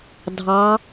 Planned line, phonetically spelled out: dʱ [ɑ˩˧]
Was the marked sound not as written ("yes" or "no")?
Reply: no